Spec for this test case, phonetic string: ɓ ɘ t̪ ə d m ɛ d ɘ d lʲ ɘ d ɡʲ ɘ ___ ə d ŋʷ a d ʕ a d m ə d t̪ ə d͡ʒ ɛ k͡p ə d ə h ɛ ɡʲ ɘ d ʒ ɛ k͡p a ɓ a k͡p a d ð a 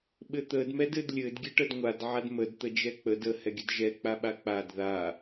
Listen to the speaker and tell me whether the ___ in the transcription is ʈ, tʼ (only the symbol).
ʈ